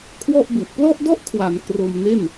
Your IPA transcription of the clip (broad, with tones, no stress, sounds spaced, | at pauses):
kʰ w ɔ˥˩ ʔ b u˨˩ ʔ p l ɔ˥˩ ʔ d ɔ˥˩ ʔ kʰ w a˩˦ n k r o˧ m n e˥˩ n